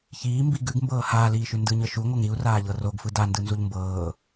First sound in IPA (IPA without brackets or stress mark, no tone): ç